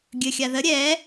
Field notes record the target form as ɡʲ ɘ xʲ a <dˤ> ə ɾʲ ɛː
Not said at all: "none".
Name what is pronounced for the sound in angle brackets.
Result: ð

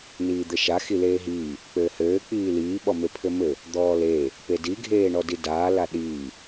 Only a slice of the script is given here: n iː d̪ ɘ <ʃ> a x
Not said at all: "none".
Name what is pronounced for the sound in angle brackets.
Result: ʃ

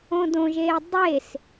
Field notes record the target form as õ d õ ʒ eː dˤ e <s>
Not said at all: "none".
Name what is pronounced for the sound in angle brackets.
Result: s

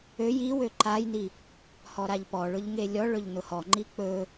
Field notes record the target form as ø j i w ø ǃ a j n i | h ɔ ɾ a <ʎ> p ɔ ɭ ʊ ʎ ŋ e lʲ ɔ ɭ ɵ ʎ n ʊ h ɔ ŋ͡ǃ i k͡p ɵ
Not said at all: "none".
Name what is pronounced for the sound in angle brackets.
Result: ʎ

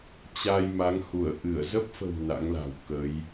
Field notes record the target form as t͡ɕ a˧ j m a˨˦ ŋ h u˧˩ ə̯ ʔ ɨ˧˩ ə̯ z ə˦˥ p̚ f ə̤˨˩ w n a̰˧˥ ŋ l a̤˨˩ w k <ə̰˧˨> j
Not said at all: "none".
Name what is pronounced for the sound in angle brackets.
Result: ə˨˦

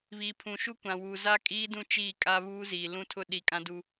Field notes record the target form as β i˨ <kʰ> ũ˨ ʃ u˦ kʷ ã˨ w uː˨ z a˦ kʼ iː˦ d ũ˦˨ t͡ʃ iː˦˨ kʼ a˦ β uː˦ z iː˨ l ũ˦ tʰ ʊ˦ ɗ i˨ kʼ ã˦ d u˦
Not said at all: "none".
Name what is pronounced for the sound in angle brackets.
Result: pʰ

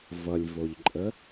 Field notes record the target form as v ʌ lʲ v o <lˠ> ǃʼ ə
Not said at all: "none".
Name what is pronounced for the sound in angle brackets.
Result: ʎ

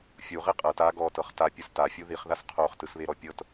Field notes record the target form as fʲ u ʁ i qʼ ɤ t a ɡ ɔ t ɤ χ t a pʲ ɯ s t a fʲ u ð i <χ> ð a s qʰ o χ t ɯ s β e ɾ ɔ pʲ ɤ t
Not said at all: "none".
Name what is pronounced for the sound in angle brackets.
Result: χ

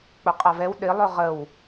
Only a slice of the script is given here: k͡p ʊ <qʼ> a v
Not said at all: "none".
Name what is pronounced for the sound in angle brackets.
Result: qʼ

